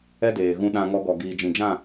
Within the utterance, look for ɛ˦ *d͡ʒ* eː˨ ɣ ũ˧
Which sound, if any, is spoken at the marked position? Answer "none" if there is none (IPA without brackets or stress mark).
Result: d